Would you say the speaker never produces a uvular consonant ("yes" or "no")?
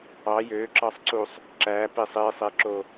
yes